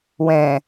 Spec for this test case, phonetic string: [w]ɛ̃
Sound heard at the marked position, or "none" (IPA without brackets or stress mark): w